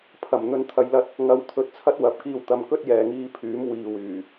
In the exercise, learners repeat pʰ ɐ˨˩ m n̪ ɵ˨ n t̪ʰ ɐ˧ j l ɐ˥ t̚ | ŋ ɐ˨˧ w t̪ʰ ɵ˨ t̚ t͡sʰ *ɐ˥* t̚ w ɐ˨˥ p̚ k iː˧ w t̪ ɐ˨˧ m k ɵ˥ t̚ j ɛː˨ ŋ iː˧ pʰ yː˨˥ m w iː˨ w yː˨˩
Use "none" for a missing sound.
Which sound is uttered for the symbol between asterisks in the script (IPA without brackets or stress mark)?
ɐ˥